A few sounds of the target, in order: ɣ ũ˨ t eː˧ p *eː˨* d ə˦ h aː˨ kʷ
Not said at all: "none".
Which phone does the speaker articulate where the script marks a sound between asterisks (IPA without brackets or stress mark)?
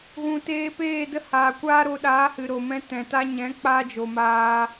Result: eː˦˨